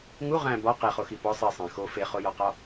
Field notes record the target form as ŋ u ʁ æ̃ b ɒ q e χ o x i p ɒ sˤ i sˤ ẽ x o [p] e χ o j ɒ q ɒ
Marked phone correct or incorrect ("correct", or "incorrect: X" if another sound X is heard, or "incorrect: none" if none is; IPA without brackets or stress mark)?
incorrect: f